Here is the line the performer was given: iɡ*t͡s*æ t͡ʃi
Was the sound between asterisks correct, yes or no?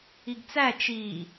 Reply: yes